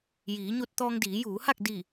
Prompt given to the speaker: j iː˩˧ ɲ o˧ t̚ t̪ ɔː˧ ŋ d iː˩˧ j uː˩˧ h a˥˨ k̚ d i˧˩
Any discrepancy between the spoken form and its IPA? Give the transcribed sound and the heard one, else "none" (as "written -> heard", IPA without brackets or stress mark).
none